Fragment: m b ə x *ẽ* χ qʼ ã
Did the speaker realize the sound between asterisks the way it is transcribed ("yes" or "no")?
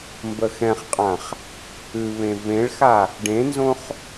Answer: no